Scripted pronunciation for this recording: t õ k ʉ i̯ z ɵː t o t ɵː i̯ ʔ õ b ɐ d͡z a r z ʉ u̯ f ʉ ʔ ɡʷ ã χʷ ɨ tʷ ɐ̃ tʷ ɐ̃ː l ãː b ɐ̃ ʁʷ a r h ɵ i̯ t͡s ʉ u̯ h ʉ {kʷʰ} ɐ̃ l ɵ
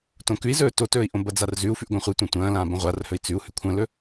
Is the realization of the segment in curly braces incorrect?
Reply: no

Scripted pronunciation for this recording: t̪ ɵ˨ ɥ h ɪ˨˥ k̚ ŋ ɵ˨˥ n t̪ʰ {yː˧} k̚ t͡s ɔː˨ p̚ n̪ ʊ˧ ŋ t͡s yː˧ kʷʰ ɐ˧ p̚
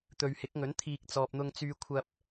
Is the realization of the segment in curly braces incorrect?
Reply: yes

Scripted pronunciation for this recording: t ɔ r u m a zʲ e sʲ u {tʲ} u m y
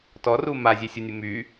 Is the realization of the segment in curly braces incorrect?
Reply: yes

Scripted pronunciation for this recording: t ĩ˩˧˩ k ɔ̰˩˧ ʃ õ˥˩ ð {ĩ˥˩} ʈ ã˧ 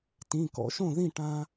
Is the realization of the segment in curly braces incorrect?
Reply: no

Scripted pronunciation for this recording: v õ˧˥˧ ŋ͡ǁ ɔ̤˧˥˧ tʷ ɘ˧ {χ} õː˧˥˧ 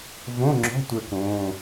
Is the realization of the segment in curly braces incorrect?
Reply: yes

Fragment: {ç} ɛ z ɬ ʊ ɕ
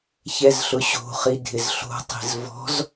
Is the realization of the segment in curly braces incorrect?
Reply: no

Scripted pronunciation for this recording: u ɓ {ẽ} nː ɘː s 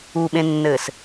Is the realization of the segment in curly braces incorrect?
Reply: no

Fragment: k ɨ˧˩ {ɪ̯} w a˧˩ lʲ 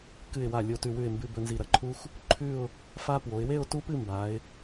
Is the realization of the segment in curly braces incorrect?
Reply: no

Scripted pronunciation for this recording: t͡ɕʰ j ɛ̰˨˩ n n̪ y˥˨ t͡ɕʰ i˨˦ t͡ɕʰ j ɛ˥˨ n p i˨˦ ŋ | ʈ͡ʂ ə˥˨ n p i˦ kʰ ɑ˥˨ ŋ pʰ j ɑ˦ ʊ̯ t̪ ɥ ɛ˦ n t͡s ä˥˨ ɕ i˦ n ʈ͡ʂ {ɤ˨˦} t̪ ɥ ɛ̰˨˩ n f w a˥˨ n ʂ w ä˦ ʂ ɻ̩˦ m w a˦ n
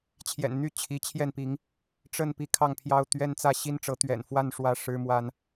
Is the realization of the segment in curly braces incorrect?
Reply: no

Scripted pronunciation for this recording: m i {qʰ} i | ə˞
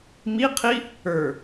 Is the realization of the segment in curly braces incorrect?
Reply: no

